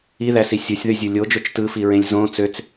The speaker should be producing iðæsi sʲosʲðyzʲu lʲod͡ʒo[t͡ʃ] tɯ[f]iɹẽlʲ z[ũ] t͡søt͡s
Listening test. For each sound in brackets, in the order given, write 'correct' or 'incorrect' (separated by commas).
correct, correct, incorrect